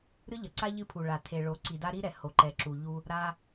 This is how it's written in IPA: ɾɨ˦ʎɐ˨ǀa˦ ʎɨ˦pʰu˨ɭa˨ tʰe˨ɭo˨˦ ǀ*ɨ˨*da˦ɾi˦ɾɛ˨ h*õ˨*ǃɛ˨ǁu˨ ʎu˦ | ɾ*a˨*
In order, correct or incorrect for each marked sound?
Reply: incorrect: i˨, incorrect: o˨, incorrect: a˦

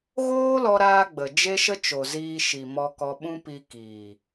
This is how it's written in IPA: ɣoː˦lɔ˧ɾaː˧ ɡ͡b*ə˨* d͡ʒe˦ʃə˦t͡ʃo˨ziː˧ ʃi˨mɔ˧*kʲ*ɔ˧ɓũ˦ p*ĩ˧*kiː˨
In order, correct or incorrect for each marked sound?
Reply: correct, incorrect: k, incorrect: i˧

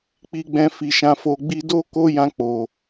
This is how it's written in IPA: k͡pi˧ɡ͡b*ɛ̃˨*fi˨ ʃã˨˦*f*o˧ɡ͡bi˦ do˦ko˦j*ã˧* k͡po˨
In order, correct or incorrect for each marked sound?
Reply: incorrect: ɛ̃˧, correct, correct

